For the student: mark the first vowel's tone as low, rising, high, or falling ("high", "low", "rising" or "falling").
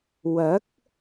rising